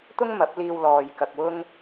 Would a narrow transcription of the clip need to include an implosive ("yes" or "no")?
no